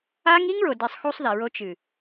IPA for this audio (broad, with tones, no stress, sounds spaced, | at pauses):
a˦ ŋ i˦ ŋ ɭ o˨ d e˨ sˤ x u˦ sˤ ð ɛ˨ ɹ o˦ t͡ʃ ɨ˨